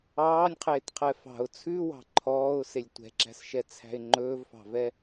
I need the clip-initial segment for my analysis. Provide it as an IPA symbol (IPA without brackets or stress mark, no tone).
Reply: ɑː